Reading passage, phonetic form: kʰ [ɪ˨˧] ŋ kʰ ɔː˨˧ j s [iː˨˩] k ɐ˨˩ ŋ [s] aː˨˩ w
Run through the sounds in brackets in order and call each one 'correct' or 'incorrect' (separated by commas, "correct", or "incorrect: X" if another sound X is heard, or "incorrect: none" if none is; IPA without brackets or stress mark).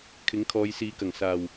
incorrect: ɪ˨˥, incorrect: iː˨˥, correct